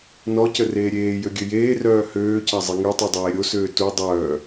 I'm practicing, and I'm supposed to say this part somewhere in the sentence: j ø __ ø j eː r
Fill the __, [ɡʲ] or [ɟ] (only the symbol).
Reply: ɡʲ